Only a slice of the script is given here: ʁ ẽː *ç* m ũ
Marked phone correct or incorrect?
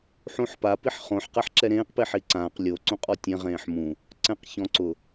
incorrect